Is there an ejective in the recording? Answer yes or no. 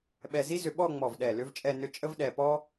yes